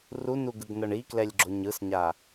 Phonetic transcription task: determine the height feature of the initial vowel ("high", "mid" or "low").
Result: high